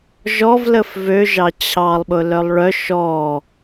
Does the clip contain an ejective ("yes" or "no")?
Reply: no